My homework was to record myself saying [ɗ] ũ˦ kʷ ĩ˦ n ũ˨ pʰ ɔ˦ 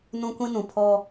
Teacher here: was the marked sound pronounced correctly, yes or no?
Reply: no